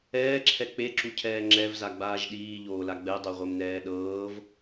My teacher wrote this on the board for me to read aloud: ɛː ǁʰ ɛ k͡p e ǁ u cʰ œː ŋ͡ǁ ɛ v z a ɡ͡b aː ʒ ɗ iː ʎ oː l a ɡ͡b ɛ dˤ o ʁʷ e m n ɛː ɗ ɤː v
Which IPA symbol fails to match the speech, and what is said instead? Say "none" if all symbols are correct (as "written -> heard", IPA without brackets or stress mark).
œː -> ɛː